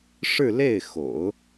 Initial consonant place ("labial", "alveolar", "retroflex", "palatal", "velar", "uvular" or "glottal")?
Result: retroflex